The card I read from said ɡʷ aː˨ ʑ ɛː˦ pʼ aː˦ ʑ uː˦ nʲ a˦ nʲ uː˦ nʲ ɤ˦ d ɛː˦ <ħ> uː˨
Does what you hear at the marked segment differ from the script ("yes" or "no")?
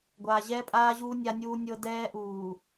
yes